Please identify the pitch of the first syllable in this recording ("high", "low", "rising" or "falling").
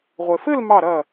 low